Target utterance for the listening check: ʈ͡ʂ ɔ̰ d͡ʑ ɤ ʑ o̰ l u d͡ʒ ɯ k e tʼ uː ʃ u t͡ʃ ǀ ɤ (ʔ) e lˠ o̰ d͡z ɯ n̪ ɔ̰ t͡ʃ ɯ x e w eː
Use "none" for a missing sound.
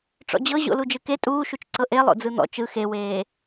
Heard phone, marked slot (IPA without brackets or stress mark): ʔ